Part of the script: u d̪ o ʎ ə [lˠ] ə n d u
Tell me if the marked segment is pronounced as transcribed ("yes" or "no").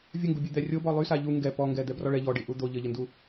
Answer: no